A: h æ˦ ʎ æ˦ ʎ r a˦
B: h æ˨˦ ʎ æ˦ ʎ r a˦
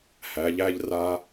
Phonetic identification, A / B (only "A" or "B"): B